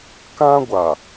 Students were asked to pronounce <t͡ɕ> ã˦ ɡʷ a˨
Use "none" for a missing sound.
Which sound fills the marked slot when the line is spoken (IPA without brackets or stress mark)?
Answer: k